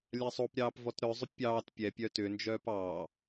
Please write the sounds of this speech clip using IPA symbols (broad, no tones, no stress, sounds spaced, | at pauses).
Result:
lʲ a sˤ o p ɾʲ ɑː p v ɔ t ɾ œ zˤ ʏ pʲ ɑː t pʲ ɛ pʲ œ t ʏ n d͡ʒ œː p ɑː